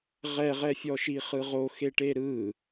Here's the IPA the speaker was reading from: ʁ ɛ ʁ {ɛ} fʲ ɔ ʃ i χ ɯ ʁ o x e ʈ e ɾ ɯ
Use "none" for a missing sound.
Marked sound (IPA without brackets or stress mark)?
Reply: ɛ